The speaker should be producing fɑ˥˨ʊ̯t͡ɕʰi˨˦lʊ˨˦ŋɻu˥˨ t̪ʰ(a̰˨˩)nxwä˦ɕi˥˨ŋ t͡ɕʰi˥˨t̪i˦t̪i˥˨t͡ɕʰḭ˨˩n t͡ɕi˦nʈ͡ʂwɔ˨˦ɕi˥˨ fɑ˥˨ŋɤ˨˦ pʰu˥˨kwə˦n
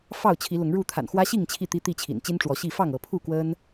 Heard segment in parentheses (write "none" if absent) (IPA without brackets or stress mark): a̰˨˩